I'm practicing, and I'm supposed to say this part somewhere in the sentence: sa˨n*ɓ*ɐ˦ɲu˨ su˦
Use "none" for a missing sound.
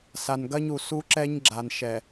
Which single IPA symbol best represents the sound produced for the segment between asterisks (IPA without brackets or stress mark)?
ɡ